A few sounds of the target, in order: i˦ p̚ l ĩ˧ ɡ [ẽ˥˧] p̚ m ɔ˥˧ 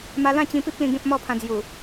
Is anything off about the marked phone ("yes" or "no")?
yes